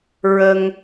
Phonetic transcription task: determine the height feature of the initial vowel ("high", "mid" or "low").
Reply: mid